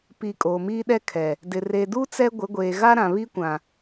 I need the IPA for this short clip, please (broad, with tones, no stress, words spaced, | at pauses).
pi˨ kʼoː˨miː˦ɗɛ˦kʰɛ˨ | dɪ˨ re˨duː˦ t͡sɛ˦ ɡʷɪ˨˦ɡʷeː˨ ɣa˦ɾã˨ βi˦kʷã˨